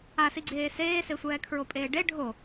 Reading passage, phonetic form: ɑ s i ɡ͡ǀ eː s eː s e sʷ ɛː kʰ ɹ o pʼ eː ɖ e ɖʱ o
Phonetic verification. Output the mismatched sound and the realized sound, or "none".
ɑ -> a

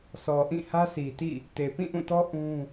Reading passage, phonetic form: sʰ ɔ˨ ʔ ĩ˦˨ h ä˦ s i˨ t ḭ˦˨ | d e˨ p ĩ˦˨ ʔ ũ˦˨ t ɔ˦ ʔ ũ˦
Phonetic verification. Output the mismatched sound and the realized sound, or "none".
d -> t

